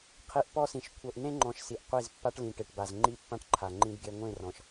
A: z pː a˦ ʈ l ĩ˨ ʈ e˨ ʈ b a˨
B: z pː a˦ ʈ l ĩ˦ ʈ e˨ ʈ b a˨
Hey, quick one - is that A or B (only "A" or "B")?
A